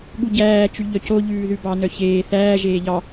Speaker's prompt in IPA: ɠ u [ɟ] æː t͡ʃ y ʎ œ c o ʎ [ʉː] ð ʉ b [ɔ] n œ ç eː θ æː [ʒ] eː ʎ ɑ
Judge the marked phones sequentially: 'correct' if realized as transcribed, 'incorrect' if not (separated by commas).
correct, correct, incorrect, correct